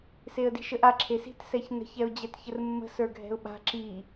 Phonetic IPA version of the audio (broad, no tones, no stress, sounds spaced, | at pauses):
s e ə̯ d i̤ ʃ ə ʔ a ǁʰ e s i̤ t s ɛ ç n ə̤ ç ɛ ʊ̯ d͡ʑ ɛ t ç ə r mː ə̤ s ə˞ ɡʱ ɛ̤ ʊ̯ ɓ a̤ ǁ i